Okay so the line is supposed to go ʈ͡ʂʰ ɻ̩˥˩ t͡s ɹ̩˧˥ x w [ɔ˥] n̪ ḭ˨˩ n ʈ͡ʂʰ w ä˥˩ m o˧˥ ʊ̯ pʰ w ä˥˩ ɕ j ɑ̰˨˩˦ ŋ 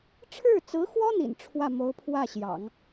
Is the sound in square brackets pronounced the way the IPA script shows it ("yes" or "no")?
yes